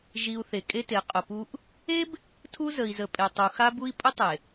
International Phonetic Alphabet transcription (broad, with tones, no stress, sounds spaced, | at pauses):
ʒ i˨ u̯ θ e˨ kʼ e˦ t e˨˦ qʼ ʊ˨ p u˦ ʔ | e˦ b | tʰ u˦ z ə˨ i̯ z ə˨ pʼ e˨ tˤ u˨ x a˦ b u˦ i̯ pʼ ʊ˦ tˤ e˨